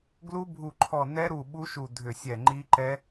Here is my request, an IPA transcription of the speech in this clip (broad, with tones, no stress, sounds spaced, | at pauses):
ɡ l u˦˥ bʱ u˧˩ ǃʰ ɔ˧˩ n ɛ˦˥ ɾ u˧˩ ɓ u˦˥ ʃ u˧˩ dʱ ʏ˧˩ sʲ ɛ˧˩ ŋ͡ǃ i˦˥ ǃ ɛ˦˥